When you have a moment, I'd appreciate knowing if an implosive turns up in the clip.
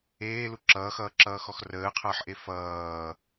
no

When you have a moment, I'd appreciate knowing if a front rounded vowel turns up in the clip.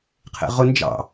no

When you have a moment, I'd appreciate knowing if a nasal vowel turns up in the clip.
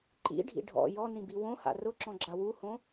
yes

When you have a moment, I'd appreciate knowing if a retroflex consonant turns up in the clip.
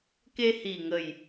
no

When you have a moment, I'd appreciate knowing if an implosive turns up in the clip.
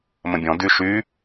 no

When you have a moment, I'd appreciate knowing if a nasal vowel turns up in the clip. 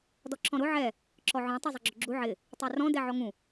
yes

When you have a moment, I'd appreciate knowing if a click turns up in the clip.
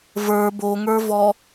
no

